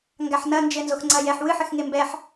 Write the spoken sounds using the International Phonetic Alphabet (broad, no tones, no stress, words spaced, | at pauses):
ŋɡaħnɐ nd͡ʒɘ nzoxŋ͡ǀɐ jɛħ wɨħɘx ŋembɛħ